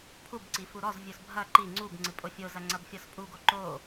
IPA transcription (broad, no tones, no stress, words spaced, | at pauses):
pʰubǀi fuɾɔzvʲus bʱɐ ǃi ŋ͡ǀub ŋ͡ǀɨpʼofʲozɐ ŋ͡ǀɐbfʲɔspʼuɡo ǃo